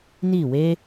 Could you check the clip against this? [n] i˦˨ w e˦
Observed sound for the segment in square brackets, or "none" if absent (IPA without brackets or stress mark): n